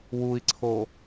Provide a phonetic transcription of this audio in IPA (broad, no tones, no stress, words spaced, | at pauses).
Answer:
wui̯ǀʰo